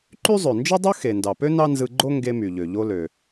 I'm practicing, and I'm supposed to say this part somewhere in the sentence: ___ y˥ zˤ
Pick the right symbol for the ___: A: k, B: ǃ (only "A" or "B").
B